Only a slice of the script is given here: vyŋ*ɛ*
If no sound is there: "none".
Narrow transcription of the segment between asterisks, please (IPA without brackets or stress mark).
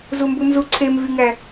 æ